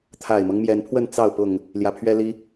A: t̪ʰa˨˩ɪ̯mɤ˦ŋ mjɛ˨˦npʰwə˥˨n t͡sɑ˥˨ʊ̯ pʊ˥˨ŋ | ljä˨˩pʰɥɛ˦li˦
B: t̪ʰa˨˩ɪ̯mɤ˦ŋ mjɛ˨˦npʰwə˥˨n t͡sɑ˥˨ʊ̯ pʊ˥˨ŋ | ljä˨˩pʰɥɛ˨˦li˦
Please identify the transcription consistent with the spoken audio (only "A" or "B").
A